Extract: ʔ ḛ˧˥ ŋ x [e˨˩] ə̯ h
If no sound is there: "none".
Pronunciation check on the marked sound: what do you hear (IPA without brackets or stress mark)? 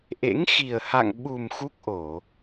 i˨˩